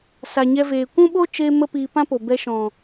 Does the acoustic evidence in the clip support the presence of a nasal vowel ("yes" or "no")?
yes